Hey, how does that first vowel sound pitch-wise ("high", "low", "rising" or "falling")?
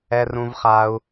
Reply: high